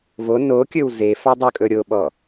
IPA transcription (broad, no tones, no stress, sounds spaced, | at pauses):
v o n o kʲ ɵ w z e f ɑ dˤ ɵ kʼ ɵ ɾʲ o ɓ ɔ